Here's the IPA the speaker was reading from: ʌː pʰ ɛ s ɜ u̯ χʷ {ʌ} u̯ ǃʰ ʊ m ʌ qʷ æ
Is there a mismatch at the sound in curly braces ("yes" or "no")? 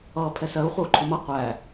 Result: no